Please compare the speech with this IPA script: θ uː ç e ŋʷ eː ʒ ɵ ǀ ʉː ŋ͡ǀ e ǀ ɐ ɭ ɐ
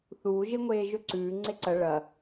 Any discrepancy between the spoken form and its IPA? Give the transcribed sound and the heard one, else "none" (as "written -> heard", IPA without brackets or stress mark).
ç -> ʒ